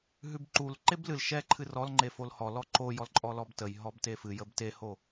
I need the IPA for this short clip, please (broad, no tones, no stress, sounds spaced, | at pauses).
ɦ ʉ b ǃ u l ǃ e b l ɨ l ʃ ɛ ǃʰ ɨ r ɔ l ŋ͡ǃ e f o l h ɔ l ɔ ǃ o j ɔ l ǃʼ ɔ l ɔ b t ə j ɦ ɔ b t e f ɨ j ə b t e h o